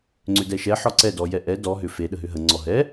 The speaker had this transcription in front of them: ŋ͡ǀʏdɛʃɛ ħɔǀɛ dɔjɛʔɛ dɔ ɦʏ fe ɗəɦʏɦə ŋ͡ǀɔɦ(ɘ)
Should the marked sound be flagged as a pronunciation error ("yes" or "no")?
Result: yes